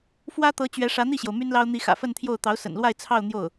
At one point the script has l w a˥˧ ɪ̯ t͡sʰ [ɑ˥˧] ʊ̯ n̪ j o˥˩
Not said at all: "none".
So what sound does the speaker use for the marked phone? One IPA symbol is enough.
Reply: ɑ˥˧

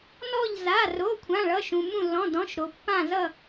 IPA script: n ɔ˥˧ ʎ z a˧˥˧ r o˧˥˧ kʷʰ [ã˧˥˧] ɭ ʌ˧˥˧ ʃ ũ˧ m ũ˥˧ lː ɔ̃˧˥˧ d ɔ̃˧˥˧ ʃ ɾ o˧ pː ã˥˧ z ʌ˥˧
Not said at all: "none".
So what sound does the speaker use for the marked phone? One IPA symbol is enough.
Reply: ã˧˥˧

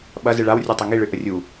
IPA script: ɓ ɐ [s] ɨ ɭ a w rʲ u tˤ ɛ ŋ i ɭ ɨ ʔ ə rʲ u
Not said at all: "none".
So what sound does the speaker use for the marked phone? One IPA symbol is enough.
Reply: z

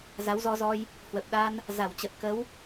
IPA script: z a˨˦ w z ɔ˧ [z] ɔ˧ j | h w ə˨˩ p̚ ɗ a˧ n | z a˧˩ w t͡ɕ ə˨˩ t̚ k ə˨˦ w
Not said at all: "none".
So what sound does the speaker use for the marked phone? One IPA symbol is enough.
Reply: z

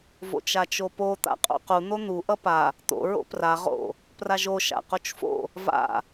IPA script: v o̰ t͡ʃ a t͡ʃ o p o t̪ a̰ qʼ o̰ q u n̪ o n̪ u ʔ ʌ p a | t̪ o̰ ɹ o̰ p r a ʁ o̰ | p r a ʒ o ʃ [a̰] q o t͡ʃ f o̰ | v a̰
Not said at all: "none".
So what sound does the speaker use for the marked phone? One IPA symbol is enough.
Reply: a̰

